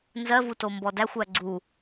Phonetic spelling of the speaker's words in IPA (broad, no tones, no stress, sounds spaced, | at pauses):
n z ɜ v u t o m b ɔ d æ xʷ æ ɡ͡ǀ u